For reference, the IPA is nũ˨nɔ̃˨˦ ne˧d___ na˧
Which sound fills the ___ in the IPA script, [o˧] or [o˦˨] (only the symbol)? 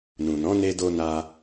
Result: o˧